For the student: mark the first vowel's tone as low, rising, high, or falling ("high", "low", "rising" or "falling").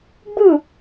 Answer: falling